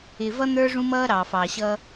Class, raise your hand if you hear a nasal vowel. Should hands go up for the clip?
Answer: yes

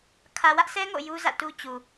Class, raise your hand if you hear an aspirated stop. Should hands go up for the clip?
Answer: yes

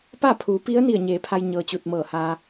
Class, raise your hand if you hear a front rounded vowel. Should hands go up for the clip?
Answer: no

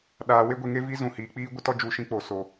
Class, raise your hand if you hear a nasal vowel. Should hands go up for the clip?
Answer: yes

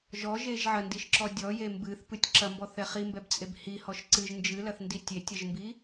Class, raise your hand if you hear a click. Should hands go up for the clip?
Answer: yes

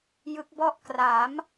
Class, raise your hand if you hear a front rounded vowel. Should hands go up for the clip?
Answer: no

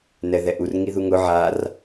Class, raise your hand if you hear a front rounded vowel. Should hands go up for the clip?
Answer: no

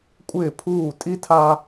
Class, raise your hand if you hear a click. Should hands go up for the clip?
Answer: no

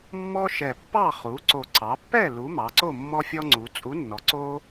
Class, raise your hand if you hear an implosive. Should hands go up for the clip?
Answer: no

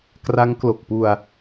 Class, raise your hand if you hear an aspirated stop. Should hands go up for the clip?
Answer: no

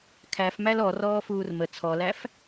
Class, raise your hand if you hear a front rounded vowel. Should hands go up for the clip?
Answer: no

